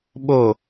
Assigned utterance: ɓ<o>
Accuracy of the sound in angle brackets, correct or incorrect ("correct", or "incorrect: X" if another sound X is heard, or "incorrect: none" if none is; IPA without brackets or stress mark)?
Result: correct